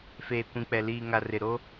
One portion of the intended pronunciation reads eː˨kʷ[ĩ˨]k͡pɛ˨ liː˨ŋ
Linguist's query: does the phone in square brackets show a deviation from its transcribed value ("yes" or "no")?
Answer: no